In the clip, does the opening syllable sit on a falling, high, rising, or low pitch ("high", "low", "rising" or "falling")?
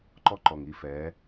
high